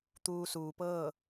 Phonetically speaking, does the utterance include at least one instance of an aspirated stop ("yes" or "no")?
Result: no